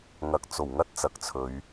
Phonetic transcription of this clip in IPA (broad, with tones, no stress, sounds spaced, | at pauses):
ŋ ɐ˨ k̚ t͡s o˨˩ w ŋ ɐ˥ t̚ t͡s ɐ˨ k̚ t͡sʰ ɵ˨˧ ɥ